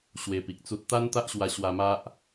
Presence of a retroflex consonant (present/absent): absent